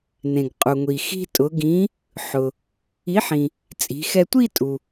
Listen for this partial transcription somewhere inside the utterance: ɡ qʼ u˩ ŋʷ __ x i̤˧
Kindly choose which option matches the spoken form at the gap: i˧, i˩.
i˩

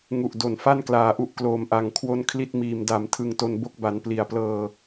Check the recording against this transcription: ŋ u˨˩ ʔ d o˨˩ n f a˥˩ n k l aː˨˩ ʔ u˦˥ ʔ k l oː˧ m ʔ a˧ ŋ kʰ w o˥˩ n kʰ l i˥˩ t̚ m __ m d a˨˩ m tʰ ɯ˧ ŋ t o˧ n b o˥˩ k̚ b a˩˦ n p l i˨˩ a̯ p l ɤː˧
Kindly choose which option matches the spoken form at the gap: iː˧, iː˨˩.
iː˧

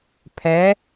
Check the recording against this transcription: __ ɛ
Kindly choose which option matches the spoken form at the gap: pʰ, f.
pʰ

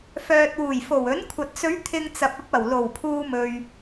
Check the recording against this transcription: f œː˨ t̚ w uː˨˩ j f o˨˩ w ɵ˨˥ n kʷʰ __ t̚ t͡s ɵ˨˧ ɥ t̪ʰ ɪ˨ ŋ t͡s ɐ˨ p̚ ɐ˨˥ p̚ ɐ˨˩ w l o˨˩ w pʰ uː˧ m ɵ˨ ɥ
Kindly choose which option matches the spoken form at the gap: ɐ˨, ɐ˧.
ɐ˨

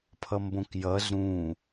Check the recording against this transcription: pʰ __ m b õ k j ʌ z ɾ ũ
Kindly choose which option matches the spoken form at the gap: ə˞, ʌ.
ʌ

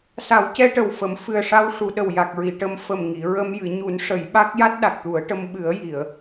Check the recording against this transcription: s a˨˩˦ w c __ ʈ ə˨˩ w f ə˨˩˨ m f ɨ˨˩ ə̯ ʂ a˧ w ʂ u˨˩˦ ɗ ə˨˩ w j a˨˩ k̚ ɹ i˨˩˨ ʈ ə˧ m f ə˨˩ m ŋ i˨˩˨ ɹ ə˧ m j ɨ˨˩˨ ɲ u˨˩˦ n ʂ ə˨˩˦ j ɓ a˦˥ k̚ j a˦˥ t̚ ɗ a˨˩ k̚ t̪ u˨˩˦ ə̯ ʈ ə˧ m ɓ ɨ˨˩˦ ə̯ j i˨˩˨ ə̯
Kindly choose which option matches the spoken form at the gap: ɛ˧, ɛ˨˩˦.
ɛ˧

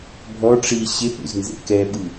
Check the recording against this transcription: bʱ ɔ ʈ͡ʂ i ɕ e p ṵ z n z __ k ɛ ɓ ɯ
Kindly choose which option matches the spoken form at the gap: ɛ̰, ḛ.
ḛ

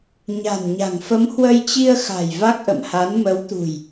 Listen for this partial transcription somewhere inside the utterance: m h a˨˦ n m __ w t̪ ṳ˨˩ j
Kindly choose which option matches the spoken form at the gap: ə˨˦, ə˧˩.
ə˨˦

